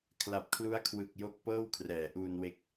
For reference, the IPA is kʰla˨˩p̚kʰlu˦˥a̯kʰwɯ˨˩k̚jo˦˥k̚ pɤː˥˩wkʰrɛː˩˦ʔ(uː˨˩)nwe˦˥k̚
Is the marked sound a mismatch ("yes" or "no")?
yes